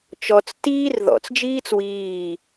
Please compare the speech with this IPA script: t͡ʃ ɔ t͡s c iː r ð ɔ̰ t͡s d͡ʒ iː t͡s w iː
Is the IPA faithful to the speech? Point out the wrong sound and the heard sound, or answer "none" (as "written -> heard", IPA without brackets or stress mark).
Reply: c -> t